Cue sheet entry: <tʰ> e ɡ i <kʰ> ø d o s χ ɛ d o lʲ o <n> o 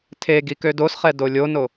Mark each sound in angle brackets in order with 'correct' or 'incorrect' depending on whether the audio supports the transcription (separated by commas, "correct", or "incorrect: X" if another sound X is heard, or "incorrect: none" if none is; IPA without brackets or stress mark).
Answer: correct, incorrect: k, correct